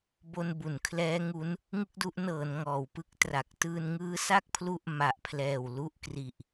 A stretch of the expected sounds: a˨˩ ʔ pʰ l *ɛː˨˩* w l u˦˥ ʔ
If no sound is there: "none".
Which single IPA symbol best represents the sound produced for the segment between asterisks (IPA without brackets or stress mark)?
ɛː˨˩